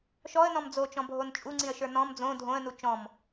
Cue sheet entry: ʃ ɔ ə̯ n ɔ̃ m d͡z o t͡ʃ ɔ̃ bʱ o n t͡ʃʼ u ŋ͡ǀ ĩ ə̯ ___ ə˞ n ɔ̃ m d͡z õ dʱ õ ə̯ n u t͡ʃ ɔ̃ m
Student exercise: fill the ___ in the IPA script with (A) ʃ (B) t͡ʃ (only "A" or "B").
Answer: A